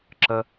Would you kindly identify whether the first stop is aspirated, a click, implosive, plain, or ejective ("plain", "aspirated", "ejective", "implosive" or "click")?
click